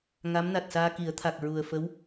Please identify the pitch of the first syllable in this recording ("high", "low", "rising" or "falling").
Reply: rising